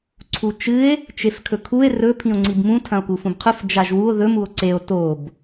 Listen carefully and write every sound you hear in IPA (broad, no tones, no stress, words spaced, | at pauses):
ǀʰut͡ʃɨe̯ | t͡ʃefkʰɵkʰue̯ rɵ pʰĩo̯ŋ͡ǀibmũ tʰɐ̃o̯kufũbqʰʉf d͡ʒaʒwuo̯ ðɵm uo̯ǀeo̯ tob